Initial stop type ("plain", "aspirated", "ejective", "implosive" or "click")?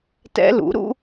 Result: plain